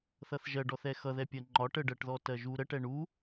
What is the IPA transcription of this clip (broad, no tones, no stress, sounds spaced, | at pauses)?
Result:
θ ʌ θ ʒ ɜ ɖ ɔ θ ɛ x ʌ ð ɛ pʲ ɜ ŋ͡ǃ ɒ ʈ ə ɖ ɜ ʈ ð ɔ t ɜ ʒ u ɾ ə ʈ ɛ ɳ u